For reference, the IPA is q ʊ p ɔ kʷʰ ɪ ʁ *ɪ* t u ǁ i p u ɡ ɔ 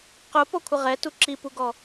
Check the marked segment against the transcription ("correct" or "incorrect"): incorrect